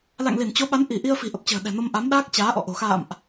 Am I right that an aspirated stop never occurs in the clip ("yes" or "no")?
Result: yes